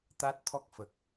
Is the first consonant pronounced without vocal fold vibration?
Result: yes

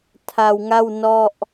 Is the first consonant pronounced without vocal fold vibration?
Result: yes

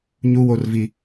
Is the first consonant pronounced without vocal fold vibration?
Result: no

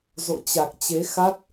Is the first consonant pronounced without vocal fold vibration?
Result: no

